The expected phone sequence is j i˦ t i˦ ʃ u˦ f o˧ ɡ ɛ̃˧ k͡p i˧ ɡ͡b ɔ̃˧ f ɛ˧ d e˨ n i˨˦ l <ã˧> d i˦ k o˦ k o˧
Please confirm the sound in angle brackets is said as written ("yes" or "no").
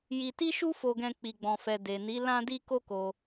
no